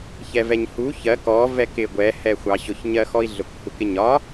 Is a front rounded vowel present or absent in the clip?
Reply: absent